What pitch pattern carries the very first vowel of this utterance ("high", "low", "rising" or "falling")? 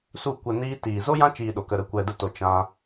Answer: falling